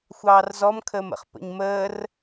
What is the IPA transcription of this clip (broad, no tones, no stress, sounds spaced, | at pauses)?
xʷ ɑː r z ɔ m kʰ əː m ə̰ χ p ə̰ ɲ m əː r